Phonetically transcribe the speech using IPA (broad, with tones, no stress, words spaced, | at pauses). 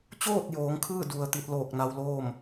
t͡ɕoː˥˨t̚ joː˩˧ŋkʰɯː˥˨ du˩ə̯ t̪i˧t̚loː˧˩k̚na˧wloː˥˨m